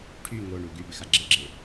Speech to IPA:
ʈʰy ŋoɳu ɡybɪxa ɡ͡ǁɪɡ͡ǁɪ

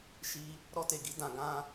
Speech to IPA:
ʃi˧ | ɾɔ˧te˨ɡi˨˦ dã˧ɡã˦

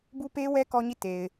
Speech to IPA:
bu˦pe˦wɛ˦ kɔ˦ɲi˦˨te˨ɪ̯

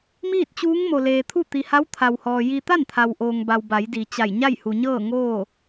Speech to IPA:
miː˥˨t̚t͡ɕuː˧˥ŋ mo˩leː˩t̪ʰu˥˨ t̪i˩ha˧˥w t̪ʰa˩whɔː˩ ji˧ t̪a˥˨nt̪ʰa˩wʔoː˩ŋba˩w ba˩˧jdi˩t͡ɕa˧˩j ɲa˥˨jhu˩ɲɤː˥˨ ŋoː˥˨

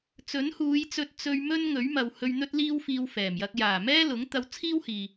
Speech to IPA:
t͡sɵ˨˥nhuː˨˧jt͡sɵ˧t̚ t͡sɵ˧ɥmɵ˥n ŋɵ˨˥ɥmɐ˨whɵ˧ɥn̪ɵ˥t̚ liː˥wfiː˧wfɛː˨˩mjɐ˧k̚ jaː˨˩mɛː˥lʊ˨˥ŋ t̪ɐ˧wt͡sʰiː˥whiː˨

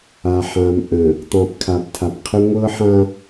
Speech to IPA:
a˨ħã˨m ʔə̃˨ | tˤɛ̃˨pkʰa˨btʰa˨pqʰə˦ ŋʷɤ˦ħã˦

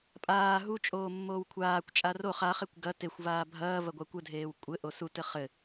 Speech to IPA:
pʼaː ɦut͡ʃʼoː mːoːwkʷʰaːkʷt͡ʃʼa roχ aχekʷ ɡɐ texʷvaː bʱɐː vɐɡʷakʷɘdʱeːw kʷʼɘʔo sutɘ χɘ

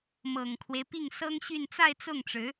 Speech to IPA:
mɤ˨˩ŋkʰwe˦ɪ̯pi˥˩ŋ sɤ˥ŋɕy˥˧n t͡sa˥˧ɪ̯t͡sʊ˥˩ŋʈ͡ʂɻ̩˧˥

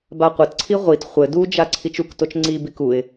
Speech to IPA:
baqʷɘtǀʰi ʁʷit χʷɘ dud͡ʒa ǀʰit͡ʃuktot͡ʃ ŋ͡ǀibik uɪ̯

